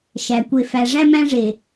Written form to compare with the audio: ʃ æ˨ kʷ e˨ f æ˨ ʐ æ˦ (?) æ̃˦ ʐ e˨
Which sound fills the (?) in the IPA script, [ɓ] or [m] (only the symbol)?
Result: m